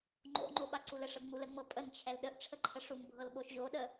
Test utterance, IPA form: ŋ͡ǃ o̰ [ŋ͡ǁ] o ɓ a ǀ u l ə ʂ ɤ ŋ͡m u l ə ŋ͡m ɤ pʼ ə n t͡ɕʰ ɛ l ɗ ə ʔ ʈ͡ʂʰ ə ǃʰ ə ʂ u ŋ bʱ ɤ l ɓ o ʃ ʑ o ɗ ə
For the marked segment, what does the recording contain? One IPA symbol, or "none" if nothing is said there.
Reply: ŋ͡ǃ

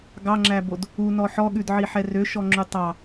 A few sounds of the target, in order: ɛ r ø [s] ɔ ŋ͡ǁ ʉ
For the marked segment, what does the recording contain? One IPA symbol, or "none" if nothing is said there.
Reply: ʃ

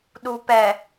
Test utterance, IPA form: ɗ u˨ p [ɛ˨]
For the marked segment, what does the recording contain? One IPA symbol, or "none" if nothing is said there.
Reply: ɛ˨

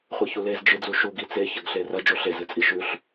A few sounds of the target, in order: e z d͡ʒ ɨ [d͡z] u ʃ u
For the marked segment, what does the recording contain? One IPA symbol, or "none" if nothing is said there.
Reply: d͡z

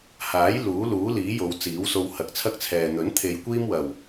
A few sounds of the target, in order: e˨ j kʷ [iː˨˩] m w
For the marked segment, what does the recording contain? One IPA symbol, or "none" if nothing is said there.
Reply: iː˥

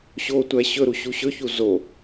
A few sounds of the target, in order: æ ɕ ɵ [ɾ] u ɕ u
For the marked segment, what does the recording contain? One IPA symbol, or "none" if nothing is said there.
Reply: ɾ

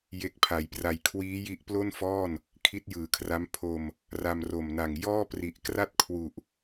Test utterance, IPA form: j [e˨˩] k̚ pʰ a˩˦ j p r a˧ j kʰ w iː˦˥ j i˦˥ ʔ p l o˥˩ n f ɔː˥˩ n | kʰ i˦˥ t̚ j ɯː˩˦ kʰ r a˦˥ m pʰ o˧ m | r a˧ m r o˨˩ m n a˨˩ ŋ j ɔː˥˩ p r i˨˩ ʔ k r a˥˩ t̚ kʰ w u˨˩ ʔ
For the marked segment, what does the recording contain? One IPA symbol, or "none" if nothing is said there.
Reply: e˦˥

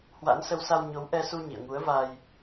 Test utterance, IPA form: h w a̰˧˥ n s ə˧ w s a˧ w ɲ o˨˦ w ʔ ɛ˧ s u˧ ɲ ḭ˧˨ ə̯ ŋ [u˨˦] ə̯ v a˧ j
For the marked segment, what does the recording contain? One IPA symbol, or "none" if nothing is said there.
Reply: u˨˦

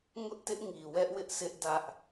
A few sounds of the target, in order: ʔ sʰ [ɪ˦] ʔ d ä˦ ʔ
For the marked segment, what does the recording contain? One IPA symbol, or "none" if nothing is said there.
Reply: ɪ˦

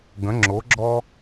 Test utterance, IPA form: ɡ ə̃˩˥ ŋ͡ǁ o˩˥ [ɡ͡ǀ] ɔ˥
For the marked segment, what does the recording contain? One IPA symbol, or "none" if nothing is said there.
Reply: ɡ͡ǁ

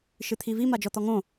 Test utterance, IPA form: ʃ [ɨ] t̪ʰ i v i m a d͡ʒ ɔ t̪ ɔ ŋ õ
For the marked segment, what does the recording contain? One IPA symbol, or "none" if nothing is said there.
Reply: ɨ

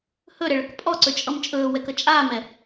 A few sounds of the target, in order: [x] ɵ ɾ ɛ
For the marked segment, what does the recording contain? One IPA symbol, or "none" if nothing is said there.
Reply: h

